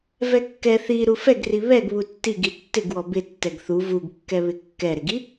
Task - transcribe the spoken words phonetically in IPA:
vɛkːɛ θi ɾufɛɡri βɛɡβu tːiɡi tːɪɡwɔ bɪ tːɛɡθu vuɡkːɛβɪ kːɛɾɪɡi

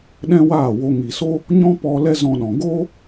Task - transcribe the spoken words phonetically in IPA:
ɗɛ̃˦waː˦˨wo˧ ŋi˨so˦ | ɲɔ̃˦pɔ˧ lɛ˦zɔ̃˧ɗɔ̃˨ ɡoː˦

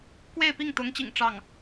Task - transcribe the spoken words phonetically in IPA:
kwe˥˧ɪ̯pi˥˩ŋt̪ʊ˧˥ŋt͡ɕḭ˨˩ŋ ʈ͡ʂɑ˥˩ŋ

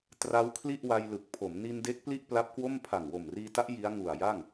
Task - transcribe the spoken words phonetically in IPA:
tra˦˥w kʰli˥˩ʔwa˧jlɯ˨˩k̚ pʰo˩˦m ni˧nde˦˥k̚ pli˥˩ʔpla˦˥p̚kwo˥˩m pʰa˨˩ŋ wo˨˩mriː˧ta˦˥ʔ ji˦˥a̯ŋu˨˩a̯ja˥˩ŋ

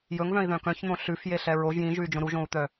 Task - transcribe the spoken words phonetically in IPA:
jɵŋvœ̃i̯ðœ̃ kœ̃çn̪õ ɬʉf jeɬɛɹoʒ jĩʒʉy̯d͡ʒõ ɾuʒõu̯t̪œ

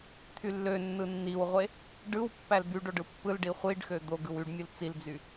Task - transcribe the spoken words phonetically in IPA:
t̪ʰylːønːɯ nːiwʁʷe | ɖɯwpːæl byɖoɖ ɯpːɯlɖi χʷiɖxø d̪oɡɯw yɖmʲul t͡sild͡zy

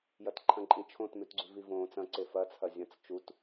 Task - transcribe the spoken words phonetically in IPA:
jɐtǃʰɐ̃ǃʼĩt͡ʃʰõt mʉtɡ͡ǀʉvivõːt͡s ɐ̃ ǀefɐ t͡sʰɐzʲɐ̃t͡s t͡ʃut

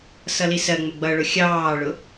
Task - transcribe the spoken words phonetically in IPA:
sʌlisɜ ŋ͡məɡ͡bʌɭʊ xʲɑːɭʊ

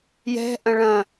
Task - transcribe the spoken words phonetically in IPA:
jɛ̤ʔɐ̃ ɭɐ̃

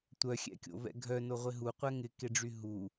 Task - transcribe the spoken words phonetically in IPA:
tʷœxʲɛ̰kʲo̰vɛ̰ ɡʱœnoʁʷɪ ɦuqʷɛ ŋɪkeɖ͡ʐy ɦu

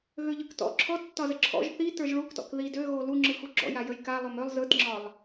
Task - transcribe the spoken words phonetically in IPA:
ɣøʎɯktɔ̰ ǁʰɔ tːɒzəǁʰɔ̰ʒ θi tə˞ʒɭuktɔ̰k ði døɣo luŋ͡ǁɯxu ɡ͡ǁɔ̰jajəj ka lˠømølˠ zɯtŋ͡ǁɒlˠ

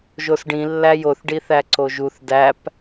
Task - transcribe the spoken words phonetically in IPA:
ʒosɖĩlːæ joθɖiθæ ǀoʒuθ dæp

